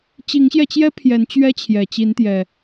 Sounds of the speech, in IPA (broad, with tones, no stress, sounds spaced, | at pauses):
t͡ɕ i˨˦ ŋ ɕ j ɛ˧ t͡ɕ j ɛ˦ pʰ j ɛ˨˦ n t͡ɕ ɥ ɛ˦ t͡ɕʰ j ɛ˨˩ t͡ɕ i˨˦ n t̪ j ɛ˨˩